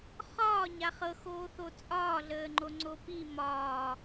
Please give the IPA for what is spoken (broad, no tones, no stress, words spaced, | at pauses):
χɒːɲa χɤxoːθo t͡sʼɒːɮəːŋ͡ǃo ŋ͡ǀopi mɒː